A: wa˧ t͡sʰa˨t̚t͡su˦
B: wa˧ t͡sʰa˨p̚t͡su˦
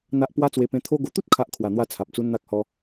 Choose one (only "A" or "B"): B